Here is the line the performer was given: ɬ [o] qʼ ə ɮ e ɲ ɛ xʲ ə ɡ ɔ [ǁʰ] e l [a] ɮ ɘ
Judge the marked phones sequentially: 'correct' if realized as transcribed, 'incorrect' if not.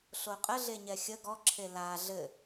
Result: correct, correct, correct

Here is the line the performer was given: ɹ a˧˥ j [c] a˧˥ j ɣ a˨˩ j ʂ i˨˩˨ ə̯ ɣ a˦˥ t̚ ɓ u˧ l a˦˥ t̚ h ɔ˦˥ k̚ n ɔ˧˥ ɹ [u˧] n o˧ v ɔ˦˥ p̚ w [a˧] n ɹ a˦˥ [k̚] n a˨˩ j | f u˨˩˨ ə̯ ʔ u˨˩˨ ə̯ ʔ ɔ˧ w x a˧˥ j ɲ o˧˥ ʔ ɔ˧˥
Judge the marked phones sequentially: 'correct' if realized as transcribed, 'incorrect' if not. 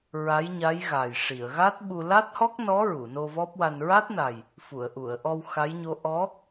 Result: incorrect, incorrect, correct, incorrect

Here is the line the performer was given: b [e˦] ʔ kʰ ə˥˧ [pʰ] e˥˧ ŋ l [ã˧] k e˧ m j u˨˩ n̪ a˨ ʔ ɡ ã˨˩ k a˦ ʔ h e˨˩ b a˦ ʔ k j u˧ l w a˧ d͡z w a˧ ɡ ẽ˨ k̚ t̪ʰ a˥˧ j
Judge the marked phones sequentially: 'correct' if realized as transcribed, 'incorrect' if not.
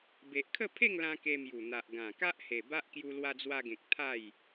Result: incorrect, correct, correct

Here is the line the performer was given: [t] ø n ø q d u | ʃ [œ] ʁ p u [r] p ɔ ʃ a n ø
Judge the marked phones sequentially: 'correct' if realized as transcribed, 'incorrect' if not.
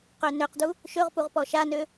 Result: incorrect, incorrect, incorrect

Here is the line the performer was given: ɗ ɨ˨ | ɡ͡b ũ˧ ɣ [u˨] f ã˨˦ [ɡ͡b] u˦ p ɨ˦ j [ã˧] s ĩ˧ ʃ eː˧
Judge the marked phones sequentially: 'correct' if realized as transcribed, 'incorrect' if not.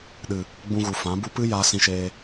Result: correct, incorrect, incorrect

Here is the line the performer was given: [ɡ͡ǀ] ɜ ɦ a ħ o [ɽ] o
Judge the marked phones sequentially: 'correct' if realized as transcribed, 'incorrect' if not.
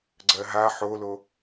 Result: correct, incorrect

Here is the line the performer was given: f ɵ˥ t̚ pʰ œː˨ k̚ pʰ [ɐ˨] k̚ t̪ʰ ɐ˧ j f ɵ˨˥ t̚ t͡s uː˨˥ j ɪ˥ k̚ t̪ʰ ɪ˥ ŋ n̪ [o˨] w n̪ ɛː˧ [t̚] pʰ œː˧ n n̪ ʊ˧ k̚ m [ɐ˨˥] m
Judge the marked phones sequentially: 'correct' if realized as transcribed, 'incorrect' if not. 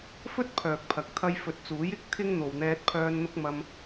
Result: correct, correct, correct, incorrect

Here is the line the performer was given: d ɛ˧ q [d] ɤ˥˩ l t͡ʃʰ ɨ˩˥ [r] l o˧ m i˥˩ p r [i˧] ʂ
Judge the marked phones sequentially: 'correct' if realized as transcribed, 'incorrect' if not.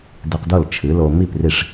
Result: correct, incorrect, incorrect

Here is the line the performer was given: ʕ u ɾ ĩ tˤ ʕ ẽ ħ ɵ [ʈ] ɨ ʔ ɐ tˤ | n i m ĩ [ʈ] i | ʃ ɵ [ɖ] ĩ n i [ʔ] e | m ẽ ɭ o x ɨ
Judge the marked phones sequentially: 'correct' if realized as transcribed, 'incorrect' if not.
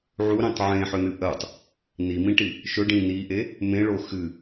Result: incorrect, correct, correct, correct

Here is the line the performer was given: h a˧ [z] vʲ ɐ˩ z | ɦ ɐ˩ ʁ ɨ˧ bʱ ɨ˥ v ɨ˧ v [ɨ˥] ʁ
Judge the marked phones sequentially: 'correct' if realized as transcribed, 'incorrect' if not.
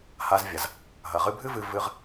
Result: correct, incorrect

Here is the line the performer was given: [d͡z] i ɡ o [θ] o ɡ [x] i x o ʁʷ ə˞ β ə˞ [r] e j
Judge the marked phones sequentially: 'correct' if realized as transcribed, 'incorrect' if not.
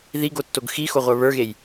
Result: incorrect, incorrect, correct, incorrect

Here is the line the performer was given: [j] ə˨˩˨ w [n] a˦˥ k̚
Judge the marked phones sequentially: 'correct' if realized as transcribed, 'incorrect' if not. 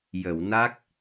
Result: correct, correct

